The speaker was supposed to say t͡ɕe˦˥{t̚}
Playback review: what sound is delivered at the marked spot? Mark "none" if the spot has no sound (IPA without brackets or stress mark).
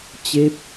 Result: p̚